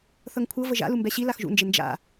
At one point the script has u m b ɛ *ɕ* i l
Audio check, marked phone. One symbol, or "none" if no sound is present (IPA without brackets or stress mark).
ɕ